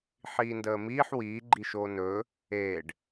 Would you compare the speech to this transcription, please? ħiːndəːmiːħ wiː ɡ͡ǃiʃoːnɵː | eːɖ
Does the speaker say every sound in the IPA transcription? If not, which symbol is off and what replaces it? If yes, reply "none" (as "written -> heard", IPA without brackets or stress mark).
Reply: none